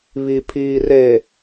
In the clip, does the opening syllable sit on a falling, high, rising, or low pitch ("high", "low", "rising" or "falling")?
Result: low